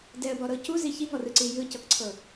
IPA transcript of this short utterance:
dɛə̯bɔɾɤ cuzi çiŋɔrɯǀi jɯcɤkǀʰɤ

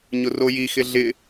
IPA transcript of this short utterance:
ɲʊrojixɪ ɮɪ

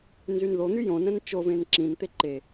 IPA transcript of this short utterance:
nzynðon̪y jõnɛ̃n t͡ʃovẽn ǁĩnt̪e ǃe

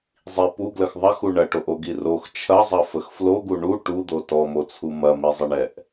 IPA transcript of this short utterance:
zˤi puɡləx ðˤɐxu ɳɐʈoʔoɡi rox t͡ʃʰɐzˤɐfəx floɡu ɳu ʈud̪o tɔmot͡sʰu mɐmizˤəɳɛʔ

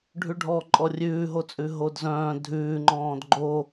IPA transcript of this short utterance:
ɖʱʉɖʱɔ ǃʼɔrʲʉːɦot͡sʼʉ ɦodzœ̃ː dʱʉːŋ͡ǃɔ̃ːd ɡ͡ǃo

